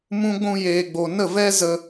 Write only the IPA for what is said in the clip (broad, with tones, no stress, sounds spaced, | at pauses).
m ũ˦ ɡʷ ũ˧ j eː˨ ɡ͡b o˨ n ə˦˨ v ɛ˦ z ə˧